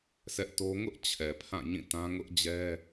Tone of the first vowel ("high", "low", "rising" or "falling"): high